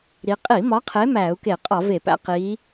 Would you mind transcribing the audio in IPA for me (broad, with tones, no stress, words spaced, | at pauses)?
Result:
ɾi˨˦ qʼi˧˩˧mɒ˨˦qʰe˨˦ mæː˧˩˧u̯ke˧˩˧qʼɒ˧˩˧ve˧˩˧ pæ̰˨˦qiː˨˦